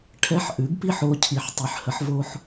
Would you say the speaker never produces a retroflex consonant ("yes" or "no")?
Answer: no